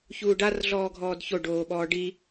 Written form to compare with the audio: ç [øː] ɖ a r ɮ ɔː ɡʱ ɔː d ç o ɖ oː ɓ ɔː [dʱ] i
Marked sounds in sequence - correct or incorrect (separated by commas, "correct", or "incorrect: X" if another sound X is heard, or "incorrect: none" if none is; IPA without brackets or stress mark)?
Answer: incorrect: uː, incorrect: ɖ